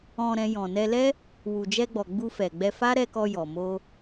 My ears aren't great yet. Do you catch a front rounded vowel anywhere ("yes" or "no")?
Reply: no